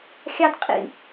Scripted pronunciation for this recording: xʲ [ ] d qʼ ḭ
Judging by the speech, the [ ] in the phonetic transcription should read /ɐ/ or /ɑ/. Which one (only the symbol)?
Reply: ɑ